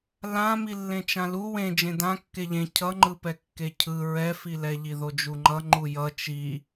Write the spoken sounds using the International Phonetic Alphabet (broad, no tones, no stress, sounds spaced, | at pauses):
l ã m i lː ẽ t͡ʃ ã l u w ẽ d͡ʒ ẽ d ã kː e ʎ ẽ cʰ ʌ ŋ͡ǃ ɯ p ɛ kː e cʰ ɯ ɹ ɛ f i l ɛ ʎ i ð o d͡ʒ u ŋ͡ǃ ʌ ŋ͡ǃ u j ʌ t͡ʃ i